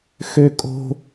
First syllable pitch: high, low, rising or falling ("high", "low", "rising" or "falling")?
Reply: high